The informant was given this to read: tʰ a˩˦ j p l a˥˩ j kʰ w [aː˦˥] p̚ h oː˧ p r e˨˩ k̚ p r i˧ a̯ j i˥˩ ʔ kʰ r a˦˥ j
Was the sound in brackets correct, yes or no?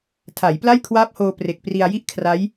yes